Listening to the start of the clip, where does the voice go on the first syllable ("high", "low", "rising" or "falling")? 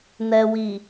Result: low